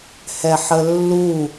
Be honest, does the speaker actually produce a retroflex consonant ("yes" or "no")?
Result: no